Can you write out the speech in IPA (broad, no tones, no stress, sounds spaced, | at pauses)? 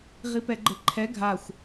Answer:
ʁ i p ɛ ɡ͡ǃ ɘ ǃʰ ɛ ɡʱ a xʷ